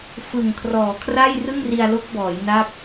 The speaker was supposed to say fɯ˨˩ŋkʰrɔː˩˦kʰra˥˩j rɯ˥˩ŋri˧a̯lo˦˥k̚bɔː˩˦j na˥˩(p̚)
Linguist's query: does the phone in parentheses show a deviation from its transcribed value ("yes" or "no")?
no